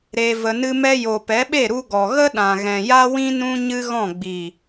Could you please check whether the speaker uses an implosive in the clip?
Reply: yes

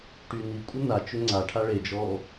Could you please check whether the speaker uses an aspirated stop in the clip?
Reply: yes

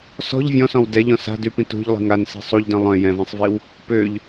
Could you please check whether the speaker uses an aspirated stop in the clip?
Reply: no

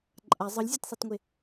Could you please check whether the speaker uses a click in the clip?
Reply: yes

